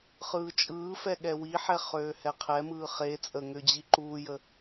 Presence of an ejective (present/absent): present